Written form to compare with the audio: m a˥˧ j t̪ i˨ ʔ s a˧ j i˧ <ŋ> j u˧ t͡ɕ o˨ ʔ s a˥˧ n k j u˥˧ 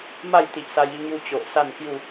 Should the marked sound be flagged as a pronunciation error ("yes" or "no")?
no